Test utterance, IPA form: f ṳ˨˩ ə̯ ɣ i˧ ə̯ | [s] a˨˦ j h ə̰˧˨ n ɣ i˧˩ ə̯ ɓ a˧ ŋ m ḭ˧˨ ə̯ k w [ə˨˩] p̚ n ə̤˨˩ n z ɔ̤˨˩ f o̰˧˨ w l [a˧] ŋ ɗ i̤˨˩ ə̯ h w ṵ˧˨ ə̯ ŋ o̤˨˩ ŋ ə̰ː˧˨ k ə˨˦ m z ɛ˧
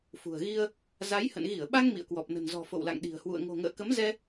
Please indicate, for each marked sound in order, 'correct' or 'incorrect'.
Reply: incorrect: z, incorrect: ɔ˨˩, incorrect: a̰˧˨

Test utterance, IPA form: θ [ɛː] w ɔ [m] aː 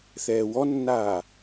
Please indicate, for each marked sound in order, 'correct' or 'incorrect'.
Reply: correct, incorrect: nː

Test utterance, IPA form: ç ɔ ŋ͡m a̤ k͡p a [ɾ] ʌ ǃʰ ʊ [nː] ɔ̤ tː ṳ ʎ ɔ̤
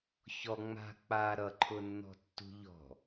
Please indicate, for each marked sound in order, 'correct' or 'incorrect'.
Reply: correct, correct

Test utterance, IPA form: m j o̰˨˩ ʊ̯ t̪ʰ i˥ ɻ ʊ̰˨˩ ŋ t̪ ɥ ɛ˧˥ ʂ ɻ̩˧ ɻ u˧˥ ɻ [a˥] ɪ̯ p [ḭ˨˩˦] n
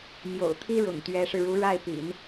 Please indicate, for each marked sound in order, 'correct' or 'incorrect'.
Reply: incorrect: a˥˩, correct

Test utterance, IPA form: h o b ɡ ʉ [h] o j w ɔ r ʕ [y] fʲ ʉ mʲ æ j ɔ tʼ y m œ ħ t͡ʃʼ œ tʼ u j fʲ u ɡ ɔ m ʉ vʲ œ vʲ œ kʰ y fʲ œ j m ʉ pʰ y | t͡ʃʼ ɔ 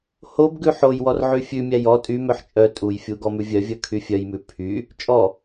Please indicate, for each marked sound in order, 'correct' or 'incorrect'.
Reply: incorrect: ħ, correct

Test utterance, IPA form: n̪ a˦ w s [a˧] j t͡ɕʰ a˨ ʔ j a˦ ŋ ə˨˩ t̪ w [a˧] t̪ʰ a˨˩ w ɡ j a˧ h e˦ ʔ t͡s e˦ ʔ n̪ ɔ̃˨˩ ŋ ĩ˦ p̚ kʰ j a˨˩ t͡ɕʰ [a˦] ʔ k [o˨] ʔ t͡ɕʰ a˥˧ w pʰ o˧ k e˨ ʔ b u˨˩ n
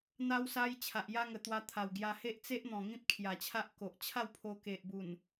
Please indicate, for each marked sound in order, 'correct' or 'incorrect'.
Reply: incorrect: a˦, correct, correct, correct

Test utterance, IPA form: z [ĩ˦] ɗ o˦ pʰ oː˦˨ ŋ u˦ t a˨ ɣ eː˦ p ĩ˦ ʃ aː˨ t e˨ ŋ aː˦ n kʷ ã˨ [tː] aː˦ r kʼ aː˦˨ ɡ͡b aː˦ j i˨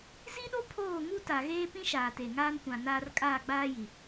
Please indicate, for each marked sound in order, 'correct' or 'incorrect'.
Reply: incorrect: i˦, incorrect: n

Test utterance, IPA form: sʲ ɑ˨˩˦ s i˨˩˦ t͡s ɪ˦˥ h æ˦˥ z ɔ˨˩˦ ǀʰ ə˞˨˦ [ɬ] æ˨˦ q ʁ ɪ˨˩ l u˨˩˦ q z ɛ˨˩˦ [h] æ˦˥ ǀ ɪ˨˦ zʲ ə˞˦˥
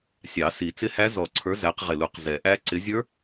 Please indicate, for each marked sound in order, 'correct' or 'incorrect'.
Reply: incorrect: z, incorrect: ʔ

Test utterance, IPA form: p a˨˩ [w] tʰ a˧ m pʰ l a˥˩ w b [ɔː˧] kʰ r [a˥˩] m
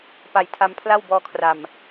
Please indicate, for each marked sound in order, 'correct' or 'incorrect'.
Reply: incorrect: j, correct, incorrect: a˨˩

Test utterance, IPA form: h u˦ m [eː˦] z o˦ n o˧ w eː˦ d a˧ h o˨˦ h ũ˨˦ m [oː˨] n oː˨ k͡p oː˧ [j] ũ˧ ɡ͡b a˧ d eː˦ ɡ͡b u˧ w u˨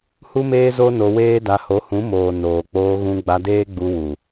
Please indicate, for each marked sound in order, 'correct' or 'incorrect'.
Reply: correct, correct, incorrect: ɣ

